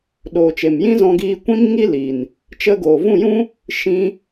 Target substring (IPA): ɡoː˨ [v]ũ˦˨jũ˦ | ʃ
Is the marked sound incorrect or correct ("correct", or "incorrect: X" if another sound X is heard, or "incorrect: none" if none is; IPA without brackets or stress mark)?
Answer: correct